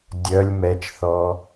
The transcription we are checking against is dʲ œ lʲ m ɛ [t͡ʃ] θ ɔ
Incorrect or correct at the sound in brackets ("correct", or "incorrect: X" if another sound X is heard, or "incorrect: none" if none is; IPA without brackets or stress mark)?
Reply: correct